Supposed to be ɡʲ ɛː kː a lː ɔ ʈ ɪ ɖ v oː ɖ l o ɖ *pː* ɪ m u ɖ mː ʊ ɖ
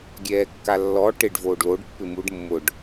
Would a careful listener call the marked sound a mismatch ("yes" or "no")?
no